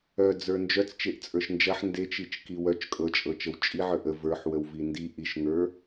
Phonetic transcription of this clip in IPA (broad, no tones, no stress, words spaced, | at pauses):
œd͡zə˞ nd͡ʒœt͡st͡ʃeʔt͡sʼə˞ʃ nd͡ʒɐħ ndet͡ʃit͡ʃki wœt͡ʃ kʼɤt͡ʃʼɤt͡ʃəw t͡ʃʼiʕə˞ʔ ə və˞ħwəwvi ndi ʔiʃŋə˞